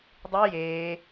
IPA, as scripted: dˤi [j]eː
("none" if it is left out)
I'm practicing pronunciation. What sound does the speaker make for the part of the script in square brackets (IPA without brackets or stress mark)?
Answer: j